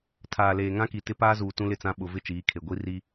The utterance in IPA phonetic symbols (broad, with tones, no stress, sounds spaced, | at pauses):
tʰ aː˨ l eː˨ ŋ ã˦ k i˨ t ɪ˦ p aː˦ z uː˨ t ũ˦ l ɪ˦˨ t͡s ã˦ ɓ ʊ˨ v ɪ˦ t͡ʃ iː˨˦ kʰ e˨ ɡʷ i˦ r i˦